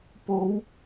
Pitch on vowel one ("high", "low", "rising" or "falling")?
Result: rising